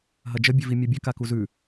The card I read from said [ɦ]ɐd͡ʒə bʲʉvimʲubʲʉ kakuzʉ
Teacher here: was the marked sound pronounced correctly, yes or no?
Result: yes